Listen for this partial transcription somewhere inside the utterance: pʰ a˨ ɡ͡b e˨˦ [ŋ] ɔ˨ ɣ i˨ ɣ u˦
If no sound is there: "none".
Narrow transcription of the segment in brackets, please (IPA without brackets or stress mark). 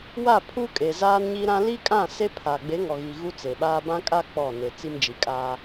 ŋ